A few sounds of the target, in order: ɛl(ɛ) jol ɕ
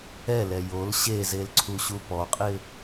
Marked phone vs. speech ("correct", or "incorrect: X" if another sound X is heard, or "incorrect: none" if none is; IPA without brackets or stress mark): correct